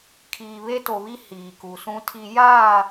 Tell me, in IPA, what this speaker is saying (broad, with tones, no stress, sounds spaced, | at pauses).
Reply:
kʰ iː˨ β e˦ t o˨ β i˦ h iː˨ k u˨ s ũ˦ tʰ i˦ j aː˦˨